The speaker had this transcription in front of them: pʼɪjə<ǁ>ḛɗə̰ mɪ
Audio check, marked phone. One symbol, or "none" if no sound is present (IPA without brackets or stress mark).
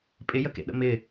k